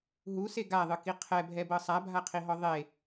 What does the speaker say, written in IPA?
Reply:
ɦ u s e ɡ a ðˤ ɯ k i qʰ ɛ bʱ ɛ b ɤ sˤ a bʱ a qʰ i ɦ ɔ ðˤ e

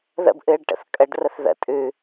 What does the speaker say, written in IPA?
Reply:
ð ə̰ b ʔ ɨː ɖ ʈ ə̰ θ kʼ ə ɖ r ə θ ð ə̰ tʼ ʉ

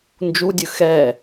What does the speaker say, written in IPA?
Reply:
n d͡ʒ u dʲ ɯ x ɛ

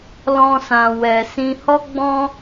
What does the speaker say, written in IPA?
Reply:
l ɔ̃˧ s ã˨ w ɛ˨ s ĩ˧ h ɔ˦ ɡ͡b ɔ̃˦

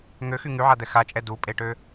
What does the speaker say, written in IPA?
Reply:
ŋ ø x y ŋ y ʕ a d̪ ɛ x a t͡ʃʼ ɛ d u pʼ e ʈ ø

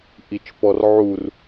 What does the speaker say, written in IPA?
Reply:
ʔ i t͡ʃ p ɔ r ʕ u r

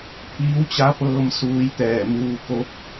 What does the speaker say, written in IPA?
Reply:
pʰ iː˧˥ w t͡ɕ a˧˥ p ɤː˧ m s uː˧ j t̪ ɛː˧˩ m uː˧ k o˧˥ p̚

